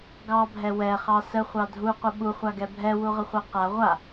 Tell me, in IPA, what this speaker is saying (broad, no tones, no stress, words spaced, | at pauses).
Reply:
ɡɑbʱɛ wɛχɑ səχʷɑ dʱuqʷə ɓuχʷaɡɛ bʱɛwuʁəχʷɛ qa ʁʷa